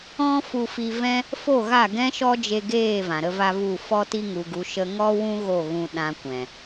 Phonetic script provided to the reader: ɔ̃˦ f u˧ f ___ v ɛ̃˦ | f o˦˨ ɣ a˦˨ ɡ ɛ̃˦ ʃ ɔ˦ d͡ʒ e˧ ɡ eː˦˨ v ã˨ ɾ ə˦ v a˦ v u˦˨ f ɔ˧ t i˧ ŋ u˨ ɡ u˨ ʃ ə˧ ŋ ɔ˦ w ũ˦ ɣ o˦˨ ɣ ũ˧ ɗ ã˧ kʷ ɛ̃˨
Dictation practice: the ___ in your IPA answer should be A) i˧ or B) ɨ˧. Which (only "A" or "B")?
A